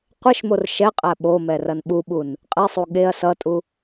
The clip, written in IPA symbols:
qʷeʃmor ʃɛqʼæ ɓomɛ rɐnɓuɓun | qʼesˤu ɠeɐ̯ sʌtʼu

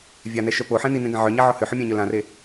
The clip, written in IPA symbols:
vʲanɛʃœ poħɛ̃ ninẽɡã ʕœɲaʕɔ hʏħomʲãɲœ lãre

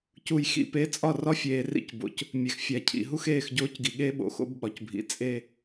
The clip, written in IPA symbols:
cu˨jxḭ˨ pe˨˦t͡sʼɒ˦˨ rɒ˦fʲeː˨rḭ˦˨cbo̰˨c | mʲe˨xfʲæ˨cʰḭ˨ ɦu˦xeː˦˨xɟoː˦cɡi˨ ɠe˦ɓo̰˨ xo̰˦bɓɒ˨cbʱḭ˨ t͡sʼe˦˨

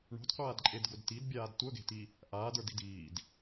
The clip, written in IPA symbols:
ɳo̤dqʷaːdǃʼedɡod tidbʲaːd tʷœɡe̤ti | ʔaːdə˞di̤d iːd

